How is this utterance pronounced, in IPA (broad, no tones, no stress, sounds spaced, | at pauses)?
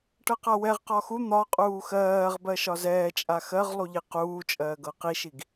ʈ ɤ q a w ɛ ʁ q ɒ x u n̪ ɒ qʼ uː x ɜː ʁ b ɜ ʃ ɒ z ɛː t͡ʃʼ a x ɜ ʁ lˠ u ʎ i q uː t͡ʃʼ ɜː ɡ ɤ q i ʃ i ɡ